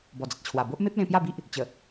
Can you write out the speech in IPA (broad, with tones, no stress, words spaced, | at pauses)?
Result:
bɔ˨˩d͡zə˨t̚t͡ɕʰwa˨˩ bo˦ʔ me˦p̚ lẽ˧pja˥˧bi˦ʔ | t͡ɕə˨˩